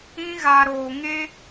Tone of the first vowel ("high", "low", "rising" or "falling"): high